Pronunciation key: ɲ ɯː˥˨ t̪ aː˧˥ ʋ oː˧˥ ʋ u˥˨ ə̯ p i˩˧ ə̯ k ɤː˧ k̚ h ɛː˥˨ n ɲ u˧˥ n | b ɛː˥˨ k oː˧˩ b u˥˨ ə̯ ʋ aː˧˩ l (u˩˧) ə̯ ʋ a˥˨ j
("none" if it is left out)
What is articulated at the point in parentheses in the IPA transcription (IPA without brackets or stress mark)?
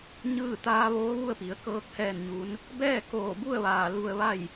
u˧